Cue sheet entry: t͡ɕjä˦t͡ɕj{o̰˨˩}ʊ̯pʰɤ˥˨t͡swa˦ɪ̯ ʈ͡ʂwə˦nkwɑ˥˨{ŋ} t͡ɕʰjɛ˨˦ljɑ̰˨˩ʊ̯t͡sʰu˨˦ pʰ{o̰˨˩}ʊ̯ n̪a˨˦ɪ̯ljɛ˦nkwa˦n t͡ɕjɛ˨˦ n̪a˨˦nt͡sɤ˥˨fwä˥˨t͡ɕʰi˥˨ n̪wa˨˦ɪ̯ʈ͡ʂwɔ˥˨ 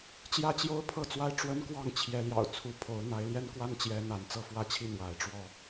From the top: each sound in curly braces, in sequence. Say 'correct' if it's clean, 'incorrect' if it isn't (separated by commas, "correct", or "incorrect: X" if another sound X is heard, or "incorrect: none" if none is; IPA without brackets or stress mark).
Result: incorrect: o˦, correct, incorrect: o˨˦